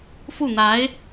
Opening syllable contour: falling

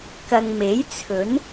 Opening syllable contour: low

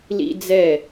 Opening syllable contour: high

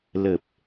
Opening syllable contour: low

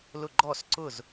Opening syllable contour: falling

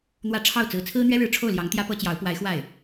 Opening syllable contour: rising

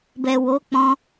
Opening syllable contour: low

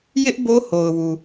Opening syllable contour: high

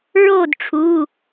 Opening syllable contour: falling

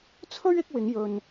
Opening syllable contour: high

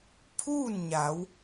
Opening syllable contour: falling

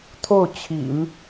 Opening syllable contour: falling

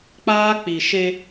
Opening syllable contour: high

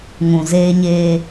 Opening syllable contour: low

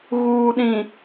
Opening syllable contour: low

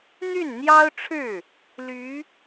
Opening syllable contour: falling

